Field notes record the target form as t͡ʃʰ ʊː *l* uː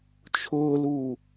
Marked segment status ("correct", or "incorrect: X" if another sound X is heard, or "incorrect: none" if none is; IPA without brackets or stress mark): correct